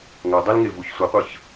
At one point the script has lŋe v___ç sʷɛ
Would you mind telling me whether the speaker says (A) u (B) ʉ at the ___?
A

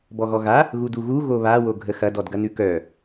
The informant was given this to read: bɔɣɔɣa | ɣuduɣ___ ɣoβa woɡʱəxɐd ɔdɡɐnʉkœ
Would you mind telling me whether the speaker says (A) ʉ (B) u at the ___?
B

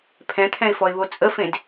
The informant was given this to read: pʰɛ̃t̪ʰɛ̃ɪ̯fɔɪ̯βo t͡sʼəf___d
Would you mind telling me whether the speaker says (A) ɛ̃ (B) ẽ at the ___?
B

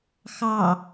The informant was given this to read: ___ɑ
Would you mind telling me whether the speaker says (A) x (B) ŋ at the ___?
A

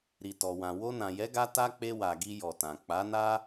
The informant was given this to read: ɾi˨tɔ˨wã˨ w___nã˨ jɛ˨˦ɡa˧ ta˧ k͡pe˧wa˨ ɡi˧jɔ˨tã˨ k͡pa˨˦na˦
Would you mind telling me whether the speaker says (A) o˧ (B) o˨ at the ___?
A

